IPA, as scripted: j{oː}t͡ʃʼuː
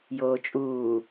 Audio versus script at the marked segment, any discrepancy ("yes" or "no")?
no